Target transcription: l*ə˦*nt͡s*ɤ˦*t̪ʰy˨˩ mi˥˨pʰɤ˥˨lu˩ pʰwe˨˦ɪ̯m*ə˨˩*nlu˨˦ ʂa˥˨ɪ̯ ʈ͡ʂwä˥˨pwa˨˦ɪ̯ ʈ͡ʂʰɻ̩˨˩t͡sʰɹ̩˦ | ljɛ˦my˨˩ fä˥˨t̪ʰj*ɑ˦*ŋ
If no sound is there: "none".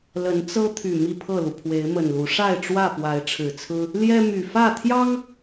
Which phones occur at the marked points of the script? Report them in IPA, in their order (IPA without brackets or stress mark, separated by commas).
ə˨˦, ɤ˦, ə˨˩, ɑ˦